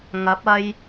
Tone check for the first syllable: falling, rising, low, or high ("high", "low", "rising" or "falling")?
rising